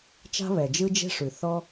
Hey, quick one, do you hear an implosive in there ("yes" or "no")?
no